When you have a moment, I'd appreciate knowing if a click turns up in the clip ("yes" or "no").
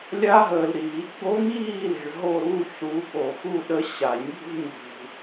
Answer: no